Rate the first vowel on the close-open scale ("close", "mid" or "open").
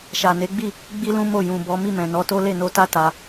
open